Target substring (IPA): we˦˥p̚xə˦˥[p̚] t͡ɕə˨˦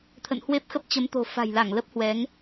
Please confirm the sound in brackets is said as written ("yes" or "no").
yes